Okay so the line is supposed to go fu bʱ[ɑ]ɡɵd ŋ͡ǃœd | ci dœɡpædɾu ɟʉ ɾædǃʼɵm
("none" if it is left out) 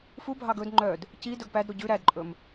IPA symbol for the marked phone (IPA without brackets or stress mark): ɑ